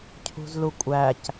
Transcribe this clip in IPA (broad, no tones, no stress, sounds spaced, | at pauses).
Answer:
cʰ ṳ z l u kʷʼ æ c